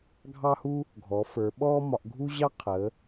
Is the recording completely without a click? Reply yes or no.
yes